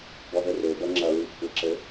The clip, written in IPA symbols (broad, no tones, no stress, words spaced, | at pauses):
bɔðɘre bɐŋ͡ǁɐ ɹikʷʰɐǁɘ